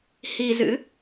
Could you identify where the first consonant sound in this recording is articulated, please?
glottal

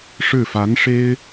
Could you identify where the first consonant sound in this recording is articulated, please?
retroflex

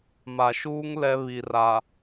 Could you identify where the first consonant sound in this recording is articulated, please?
labial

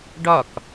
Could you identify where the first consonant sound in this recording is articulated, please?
retroflex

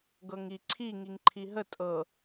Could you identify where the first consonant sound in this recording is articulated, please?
velar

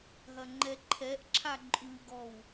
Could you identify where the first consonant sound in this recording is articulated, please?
glottal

